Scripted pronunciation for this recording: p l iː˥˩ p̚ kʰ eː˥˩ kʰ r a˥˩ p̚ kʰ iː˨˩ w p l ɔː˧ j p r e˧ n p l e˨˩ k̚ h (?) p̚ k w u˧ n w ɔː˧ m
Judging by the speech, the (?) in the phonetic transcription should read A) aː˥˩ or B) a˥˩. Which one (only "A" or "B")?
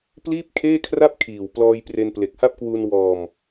B